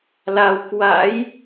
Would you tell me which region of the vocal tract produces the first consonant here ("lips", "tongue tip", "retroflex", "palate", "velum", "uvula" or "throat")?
tongue tip